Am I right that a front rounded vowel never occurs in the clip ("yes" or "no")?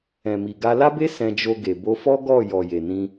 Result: yes